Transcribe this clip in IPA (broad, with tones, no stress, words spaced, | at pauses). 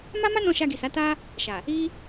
ma˦ma˦nɔ̃˧ ʃa˧ɡi˨sa˨˦ ta˦ | ʃa˨ | i˦